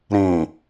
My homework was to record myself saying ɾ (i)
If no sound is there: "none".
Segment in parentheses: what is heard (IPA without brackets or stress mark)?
ĩ